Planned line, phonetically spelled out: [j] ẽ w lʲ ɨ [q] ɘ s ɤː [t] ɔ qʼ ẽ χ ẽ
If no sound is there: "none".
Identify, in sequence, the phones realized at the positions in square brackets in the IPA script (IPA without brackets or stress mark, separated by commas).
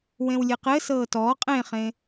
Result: w, q, t